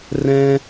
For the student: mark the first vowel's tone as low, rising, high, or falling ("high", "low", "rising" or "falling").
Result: high